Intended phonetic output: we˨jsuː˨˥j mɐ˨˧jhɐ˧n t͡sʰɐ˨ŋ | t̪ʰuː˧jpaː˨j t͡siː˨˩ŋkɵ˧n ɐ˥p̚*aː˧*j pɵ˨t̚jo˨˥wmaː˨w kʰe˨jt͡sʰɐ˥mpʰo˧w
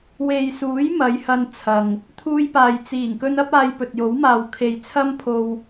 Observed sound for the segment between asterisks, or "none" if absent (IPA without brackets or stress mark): aː˧